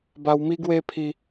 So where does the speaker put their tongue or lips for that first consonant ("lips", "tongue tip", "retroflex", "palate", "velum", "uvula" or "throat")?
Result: lips